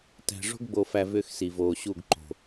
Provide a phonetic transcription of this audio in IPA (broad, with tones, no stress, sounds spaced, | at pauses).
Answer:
t æ̤˨ ʐ o̤˦ ɡ ɡ͡b o˨ f æ˨ v ʏː˦ x s i˨ v oː˨ ɕ u˦˨ ɡ ǃ o̤˨